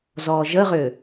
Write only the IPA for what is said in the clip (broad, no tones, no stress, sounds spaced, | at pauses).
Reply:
z ɔː ʒ ə ʁ ʏː